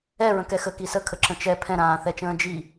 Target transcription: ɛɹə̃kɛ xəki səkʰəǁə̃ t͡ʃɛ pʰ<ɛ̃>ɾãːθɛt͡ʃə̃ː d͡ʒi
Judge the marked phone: correct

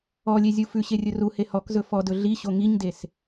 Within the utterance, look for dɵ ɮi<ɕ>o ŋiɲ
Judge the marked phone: correct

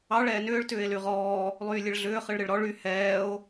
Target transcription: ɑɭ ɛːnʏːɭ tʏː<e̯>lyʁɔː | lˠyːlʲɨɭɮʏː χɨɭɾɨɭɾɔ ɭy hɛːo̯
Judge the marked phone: correct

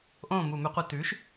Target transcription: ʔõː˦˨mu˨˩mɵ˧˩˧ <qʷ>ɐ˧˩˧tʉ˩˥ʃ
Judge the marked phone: correct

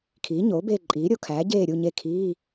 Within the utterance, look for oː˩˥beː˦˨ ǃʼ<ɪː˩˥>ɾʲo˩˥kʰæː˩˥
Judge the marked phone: incorrect: iː˩˥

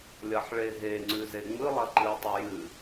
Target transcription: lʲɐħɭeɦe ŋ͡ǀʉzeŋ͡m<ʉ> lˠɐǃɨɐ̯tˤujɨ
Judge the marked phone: incorrect: ɨ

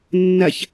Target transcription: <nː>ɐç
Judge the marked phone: correct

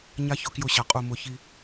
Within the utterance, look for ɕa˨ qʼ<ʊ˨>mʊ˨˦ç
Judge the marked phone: incorrect: u˨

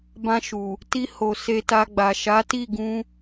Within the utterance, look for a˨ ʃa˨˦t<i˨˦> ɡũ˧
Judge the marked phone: incorrect: i˦˨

